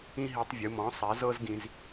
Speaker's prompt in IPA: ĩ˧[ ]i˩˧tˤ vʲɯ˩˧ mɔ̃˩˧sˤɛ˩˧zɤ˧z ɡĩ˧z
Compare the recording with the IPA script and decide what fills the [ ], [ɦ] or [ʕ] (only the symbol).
ɦ